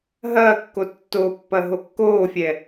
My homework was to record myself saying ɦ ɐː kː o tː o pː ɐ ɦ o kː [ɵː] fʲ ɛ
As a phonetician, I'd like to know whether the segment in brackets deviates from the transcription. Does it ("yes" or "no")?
yes